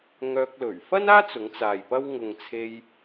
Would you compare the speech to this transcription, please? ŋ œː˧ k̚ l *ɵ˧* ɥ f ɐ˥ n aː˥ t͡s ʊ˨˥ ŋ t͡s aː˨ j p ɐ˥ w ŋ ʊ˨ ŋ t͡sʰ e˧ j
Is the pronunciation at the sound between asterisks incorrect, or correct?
incorrect: ɵ˨˩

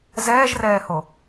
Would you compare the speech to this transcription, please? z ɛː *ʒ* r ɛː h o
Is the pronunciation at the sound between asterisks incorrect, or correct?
correct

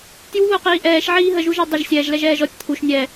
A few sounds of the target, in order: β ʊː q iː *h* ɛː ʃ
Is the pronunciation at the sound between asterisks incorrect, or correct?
incorrect: ʔ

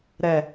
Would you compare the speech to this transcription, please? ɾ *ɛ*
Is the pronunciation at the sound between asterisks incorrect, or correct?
correct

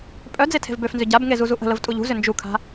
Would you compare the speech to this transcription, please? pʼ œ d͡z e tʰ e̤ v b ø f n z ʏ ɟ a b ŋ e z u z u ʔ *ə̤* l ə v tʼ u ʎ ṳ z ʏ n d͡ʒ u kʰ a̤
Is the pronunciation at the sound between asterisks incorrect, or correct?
correct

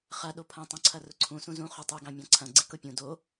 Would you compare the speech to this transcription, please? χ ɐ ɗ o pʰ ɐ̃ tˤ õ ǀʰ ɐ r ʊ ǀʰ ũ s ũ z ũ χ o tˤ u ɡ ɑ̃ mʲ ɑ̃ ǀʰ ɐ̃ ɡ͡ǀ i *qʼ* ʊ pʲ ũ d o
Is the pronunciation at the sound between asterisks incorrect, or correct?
incorrect: k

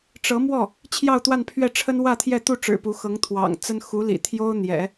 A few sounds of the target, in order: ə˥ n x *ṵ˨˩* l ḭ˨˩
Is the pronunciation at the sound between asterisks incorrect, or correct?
incorrect: u˧˥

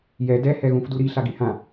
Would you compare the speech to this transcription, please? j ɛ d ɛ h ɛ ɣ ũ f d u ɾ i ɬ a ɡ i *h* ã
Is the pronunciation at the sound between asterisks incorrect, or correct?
correct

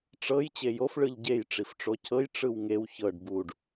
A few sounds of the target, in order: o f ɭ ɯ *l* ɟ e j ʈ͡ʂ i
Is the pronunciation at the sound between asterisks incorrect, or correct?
incorrect: ʎ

